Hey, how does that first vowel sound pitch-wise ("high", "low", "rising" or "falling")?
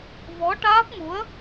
rising